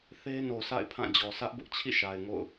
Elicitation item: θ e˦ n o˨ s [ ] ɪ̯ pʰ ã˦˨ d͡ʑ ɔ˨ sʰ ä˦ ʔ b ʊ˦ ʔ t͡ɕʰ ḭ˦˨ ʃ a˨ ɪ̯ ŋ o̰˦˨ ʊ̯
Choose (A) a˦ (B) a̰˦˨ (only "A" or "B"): B